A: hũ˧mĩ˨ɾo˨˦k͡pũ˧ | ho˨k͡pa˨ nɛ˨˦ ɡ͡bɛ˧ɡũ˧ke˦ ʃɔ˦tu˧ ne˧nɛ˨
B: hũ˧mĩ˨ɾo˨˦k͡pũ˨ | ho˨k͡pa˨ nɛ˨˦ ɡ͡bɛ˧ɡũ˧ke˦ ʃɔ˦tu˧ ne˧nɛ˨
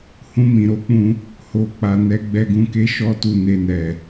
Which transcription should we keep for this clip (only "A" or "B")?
A